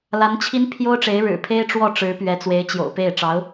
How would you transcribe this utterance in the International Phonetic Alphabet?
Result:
l a˧˥ n t͡ɕʰ i˥ n pʰ j o˥ ʊ̯ ʈ͡ʂ e˧˥ ɪ̯ ɻ ɻ̩˨˩ pʰ e˥ ɪ̯ ʈ͡ʂ w ɔ˥˩ ʈ͡ʂ ɻ̩˧˥ p ɥ ɛ˧˥ t͡s w e˧˥ ɪ̯ t͡ɕ j o̰˨˩ ʊ̯ p e˥˩ ɪ̯ ʈ͡ʂ ɑ˧˥ ʊ̯

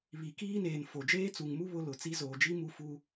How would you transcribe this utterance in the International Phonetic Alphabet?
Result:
β i˨ k iː˦ n eː˨ n f o˨ d͡ʒ eː˦ t͡s u˨ ŋ m u˦ β ʊ˦ l ʊ˨ t͡s i˦ z oː˨ d͡ʒ i˦ m u˦ f u˦

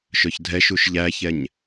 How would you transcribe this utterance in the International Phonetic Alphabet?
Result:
ʃ œ ç dʱ ɛ ʃ u ʃ ʎ æ ç ɛ ɲ

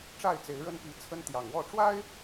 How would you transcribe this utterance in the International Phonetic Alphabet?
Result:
ʈ͡ʂ a˥˨ ɪ̯ t͡s e˨˦ ɪ̯ ɻ ə˦ n p i˨˦ t͡sʰ ə˦ n t̪ j ɑ˨˩ ŋ w ɔ˥˨ ʈ͡ʂ w a˦ ɪ̯

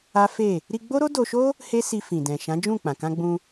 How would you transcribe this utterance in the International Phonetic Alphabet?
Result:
a˦ f e˦˨ | ɾ i˧ ɡ͡b o˦ ɾ o˦ d o˧ ʃ o˦ | h e˦ s i˧ f ĩ˨ d ɛ̃˨ ʃ ã˨˦ d͡ʒ ũ˦˨ k͡p ã˨ k ã˧ ɡ͡b ũ˧

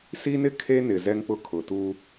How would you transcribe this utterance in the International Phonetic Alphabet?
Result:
s i˦ n ɪ˦ kʰ e˦ n ɪ˨ z ɛ˦ ŋ k͡p ʊ˦ kʰ ʊ˨ t u˦

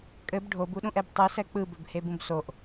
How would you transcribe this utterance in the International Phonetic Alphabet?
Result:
kʼ ɘ b ɖʱ o b u ɗ ũ ʔ ɛ b tˤ ɯ s ɛ k͡p ɯ b ɘ b h e b ũ b s o ʔ

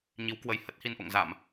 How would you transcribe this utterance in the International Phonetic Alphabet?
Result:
ɲ i˨˦ w k w ə˨˦ j h ə˦˥ t̚ h i˧ n ʔ o̰˧˨ ŋ z a˧˩˨ m

